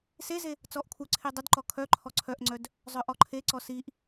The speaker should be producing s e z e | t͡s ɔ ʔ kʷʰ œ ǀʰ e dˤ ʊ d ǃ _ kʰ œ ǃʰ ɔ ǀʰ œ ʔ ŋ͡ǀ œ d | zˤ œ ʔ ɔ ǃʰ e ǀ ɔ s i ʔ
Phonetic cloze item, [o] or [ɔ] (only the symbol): ɔ